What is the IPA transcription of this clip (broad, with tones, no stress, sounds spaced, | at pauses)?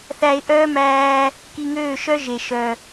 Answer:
θ æ˧ ɪ̯ ʔ œː˦ m æː˧ | k i˧ ŋ øː˦˨ ʃ œ˦ ʒ e˨ ʃ œ˨